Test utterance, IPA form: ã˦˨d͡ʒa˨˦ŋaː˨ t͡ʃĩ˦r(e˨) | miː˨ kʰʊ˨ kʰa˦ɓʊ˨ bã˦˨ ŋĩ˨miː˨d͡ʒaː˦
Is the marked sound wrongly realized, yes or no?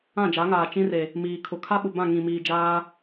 no